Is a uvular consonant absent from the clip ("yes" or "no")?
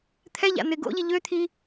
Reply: yes